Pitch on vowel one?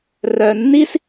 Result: low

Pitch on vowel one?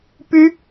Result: high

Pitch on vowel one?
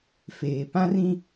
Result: low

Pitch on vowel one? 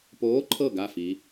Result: rising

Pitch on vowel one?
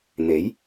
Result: rising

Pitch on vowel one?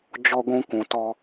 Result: high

